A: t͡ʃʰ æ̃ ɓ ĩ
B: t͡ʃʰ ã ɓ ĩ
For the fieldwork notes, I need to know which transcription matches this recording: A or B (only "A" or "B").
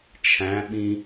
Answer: A